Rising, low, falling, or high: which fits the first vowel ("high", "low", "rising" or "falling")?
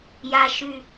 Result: high